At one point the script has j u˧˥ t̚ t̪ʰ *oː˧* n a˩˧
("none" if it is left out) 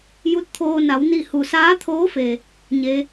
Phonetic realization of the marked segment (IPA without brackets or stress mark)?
oː˧